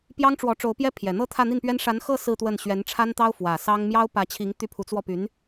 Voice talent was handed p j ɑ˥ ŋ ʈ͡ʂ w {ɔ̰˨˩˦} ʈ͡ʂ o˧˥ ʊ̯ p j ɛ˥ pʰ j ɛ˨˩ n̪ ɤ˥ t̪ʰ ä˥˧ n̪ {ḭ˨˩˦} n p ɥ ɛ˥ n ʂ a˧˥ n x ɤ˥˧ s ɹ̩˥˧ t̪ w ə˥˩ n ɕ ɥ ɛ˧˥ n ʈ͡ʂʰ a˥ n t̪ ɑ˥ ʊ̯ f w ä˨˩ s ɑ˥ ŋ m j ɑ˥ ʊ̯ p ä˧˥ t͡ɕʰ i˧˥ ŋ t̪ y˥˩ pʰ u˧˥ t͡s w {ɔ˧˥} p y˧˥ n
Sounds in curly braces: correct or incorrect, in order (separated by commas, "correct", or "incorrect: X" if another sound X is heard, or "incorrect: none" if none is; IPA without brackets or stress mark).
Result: incorrect: ɔ˧˥, incorrect: i˥˩, incorrect: ɔ˥˩